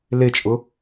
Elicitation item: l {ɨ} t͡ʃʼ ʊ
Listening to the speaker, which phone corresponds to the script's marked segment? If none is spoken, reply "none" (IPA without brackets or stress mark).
e